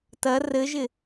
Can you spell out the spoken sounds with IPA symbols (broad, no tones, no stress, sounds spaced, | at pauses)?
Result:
t ɐ r ɘ ʒ ɪ